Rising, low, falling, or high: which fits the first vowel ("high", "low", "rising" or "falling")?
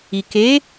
low